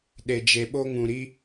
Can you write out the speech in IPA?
ɗ e˧ d͡ʒ e˧ ɓ o˦ ŋ ũ˧ ɾ i˦

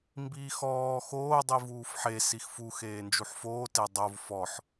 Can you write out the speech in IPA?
m b iː x ɔː x oː dˤ i v uː f ħ e s i x f u x eː n d͡ʒ u ħ f oː t e dˤ o v f ɔ ħ

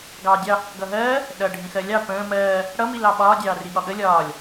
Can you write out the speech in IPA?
ɡ ɑː dʲ ɑ | ɡ ʌ ɦ ɜː | ɗ ʌ ɖʱ ĩ x ɜ lʲ ɑ p ə̃ː m ɜː | ɽ ʌ m i l ɑ ɓ ɒː dʲ ɑː r i ɠ ɒ ɠ ə lʲ ɒː lʲ

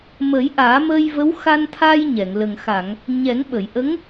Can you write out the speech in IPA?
m ə˨˩˦ j ʔ aː˨˩˦ m əː˧ j v ə˧˥ w x a˧ n t̪ʰ a˧ j ɲ ɛ˨˩˨ ŋ l ə˨˩ ŋ x a˨˩˨ ŋ | ɲ ɛ˨˩˦ ŋ ɓ ə˨˩˨ j ʔ ə˧˥ ŋ

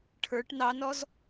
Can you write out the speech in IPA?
ʈʰ ə˞ ʈ n ɑ n ɔ z

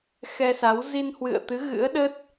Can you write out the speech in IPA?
x ɛ˧ s a˨˦ w z i˧ n h w ɨ̰˧˨ ə̯ t̪ ɨ˨˦ ɣ ɨ̰˧˥ ə̯ ɗ ə˦˥ t̚

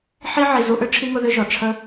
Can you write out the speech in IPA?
ħ i˦ ʕ i˨ z u˦ ʔ ʏ˦ ʈ͡ʂʰ i˥ ŋ ʊ˦ ð ʏ˥ ʒ ɔ˩ ʈ͡ʂʰ ə˦

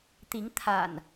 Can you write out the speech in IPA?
t̪ i˨˦ ŋ t̪ʰ a̰˨˩ n

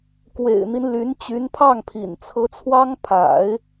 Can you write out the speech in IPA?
k w ḛ˨˩ ɪ̯ n̪ i˦ n l y˧˥ n t͡ɕ y˧˥ n pʰ ɑ˥˩ ŋ pʰ ḭ˨˩ n t͡sʰ ɤ˧˥ t͡sʰ w ɑ˥ ŋ pʰ a̰˨˩˦ ɪ̯

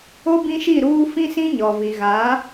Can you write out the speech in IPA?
o˦ b ĩ˦ ʃ i˦˨ ɾ uː˦ f ĩ˦ s ĩ˦ ɲ ɔ˨ v i˨ ɣ a˨˦

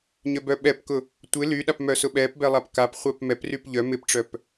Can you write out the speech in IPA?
ɲ œ b œ ɓ ɛ p k ʊ | tʷ ɪ l y ɗ a p m œ s ʊ ɓ ɛ p b ɛ lˠ a p k a p χʷ ɛ p m ɛ p r y p ʎ œ m ɪ p ʈ͡ʂ œ p

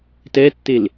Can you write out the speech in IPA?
t ɛ tː e l

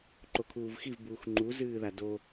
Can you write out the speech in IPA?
ǃ o kʰ uː v x i v b uː x ŋ͡ǃ u z ɨː ð a d o

